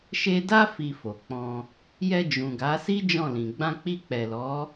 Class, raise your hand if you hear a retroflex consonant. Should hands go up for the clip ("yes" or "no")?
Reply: no